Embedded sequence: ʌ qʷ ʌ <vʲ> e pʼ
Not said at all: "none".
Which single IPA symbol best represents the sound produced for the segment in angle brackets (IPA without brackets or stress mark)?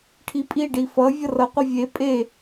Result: vʲ